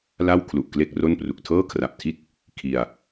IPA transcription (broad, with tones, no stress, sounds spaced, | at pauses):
l a˥˩ w kʰ l u˨˩ ʔ k l e˥˩ k̚ r o˥˩ n p r u˨˩ k̚ tʰ ɤː˥˩ kʰ r a˨˩ p̚ tʰ i˥˩ t̚ | kʰ i˧ a̯